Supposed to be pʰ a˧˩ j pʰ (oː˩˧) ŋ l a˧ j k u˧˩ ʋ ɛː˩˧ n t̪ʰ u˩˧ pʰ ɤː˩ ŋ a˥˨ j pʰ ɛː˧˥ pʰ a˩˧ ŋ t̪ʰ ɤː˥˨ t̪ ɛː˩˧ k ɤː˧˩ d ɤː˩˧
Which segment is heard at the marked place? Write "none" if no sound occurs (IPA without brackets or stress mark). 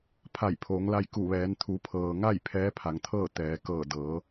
oː˩˧